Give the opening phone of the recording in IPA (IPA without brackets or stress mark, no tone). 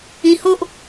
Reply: ĩ